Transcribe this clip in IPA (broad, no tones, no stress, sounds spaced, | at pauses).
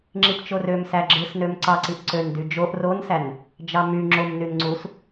ŋ͡ǁ i p t͡ʃ o r ø m s æ ɡ͡ǁ ɯ s n ø m ǀ ɑ ǀ i ʔ ǀ ø n d y d͡ʒ o ʔ r o n s æ n | d͡ʒ ɑ m y ŋ͡ǁ o m n y n ŋ͡ǀ u s